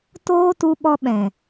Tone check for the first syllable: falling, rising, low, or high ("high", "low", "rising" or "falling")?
high